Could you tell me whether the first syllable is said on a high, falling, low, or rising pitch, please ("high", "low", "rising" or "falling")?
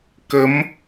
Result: rising